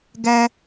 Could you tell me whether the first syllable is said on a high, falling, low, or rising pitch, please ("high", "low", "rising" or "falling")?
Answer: high